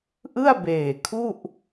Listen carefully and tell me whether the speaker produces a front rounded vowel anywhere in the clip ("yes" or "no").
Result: no